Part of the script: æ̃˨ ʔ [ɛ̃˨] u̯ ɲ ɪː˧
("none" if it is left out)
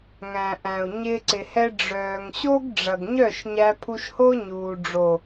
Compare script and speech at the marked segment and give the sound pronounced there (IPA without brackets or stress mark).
æ̃˨